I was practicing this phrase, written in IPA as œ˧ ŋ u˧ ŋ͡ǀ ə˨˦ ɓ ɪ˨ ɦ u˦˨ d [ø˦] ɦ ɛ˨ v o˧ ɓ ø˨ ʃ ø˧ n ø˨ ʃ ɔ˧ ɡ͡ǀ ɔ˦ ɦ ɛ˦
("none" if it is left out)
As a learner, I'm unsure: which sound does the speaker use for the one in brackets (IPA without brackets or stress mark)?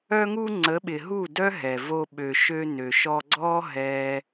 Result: œ˦